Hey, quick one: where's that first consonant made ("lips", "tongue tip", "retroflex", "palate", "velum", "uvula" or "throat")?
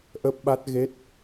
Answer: throat